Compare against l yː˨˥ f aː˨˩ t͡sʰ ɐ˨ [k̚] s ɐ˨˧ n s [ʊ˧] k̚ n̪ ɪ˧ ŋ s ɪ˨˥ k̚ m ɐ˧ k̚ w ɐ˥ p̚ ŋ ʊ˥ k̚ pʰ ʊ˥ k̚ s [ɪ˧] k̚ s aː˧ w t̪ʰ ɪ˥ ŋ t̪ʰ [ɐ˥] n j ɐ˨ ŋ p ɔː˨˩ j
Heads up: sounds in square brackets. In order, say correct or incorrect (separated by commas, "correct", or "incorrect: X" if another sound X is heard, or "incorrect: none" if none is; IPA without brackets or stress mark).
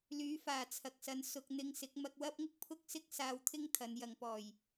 correct, incorrect: ʊ˨, incorrect: ɪ˥, incorrect: ɐ˨˧